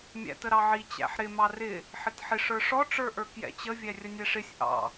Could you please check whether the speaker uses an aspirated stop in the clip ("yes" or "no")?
no